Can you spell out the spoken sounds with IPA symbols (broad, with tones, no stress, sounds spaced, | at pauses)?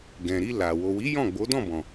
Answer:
ɡ ɛ̃˨ ɾ i˧ l a˨ w o˨ w i˨˦ j ɔ̃˦˨ ɡ͡b o˨˦ d ɔ̃˦˨ b ɔ̃˨